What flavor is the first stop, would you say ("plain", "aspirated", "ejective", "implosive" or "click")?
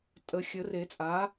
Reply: ejective